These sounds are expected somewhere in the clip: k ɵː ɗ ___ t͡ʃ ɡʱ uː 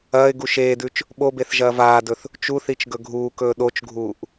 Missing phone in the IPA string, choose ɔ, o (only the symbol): o